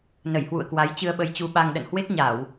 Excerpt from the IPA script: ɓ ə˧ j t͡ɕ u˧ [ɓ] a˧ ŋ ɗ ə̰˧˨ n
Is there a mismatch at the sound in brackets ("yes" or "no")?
no